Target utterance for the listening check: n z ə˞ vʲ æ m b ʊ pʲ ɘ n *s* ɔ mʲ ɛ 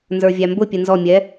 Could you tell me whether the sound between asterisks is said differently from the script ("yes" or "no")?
yes